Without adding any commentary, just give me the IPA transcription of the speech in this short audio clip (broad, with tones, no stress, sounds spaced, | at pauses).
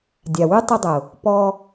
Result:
dʲ a˨ w ʉ˦ tˤ ʊ˧ dˤ ʊ˨ | p ɔ˧